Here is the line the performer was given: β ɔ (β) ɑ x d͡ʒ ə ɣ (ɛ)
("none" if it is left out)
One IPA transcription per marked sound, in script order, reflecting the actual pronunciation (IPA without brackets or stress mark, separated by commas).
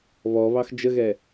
β, ɛ